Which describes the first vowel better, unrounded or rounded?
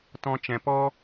rounded